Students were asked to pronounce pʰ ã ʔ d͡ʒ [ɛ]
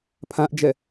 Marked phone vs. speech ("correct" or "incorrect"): correct